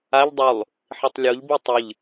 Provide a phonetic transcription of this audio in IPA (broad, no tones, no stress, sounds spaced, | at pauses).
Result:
a ʎ dˤ u lˠ | ħ i tˤ lʲ o ʎ b i tˤ ɨ ʎ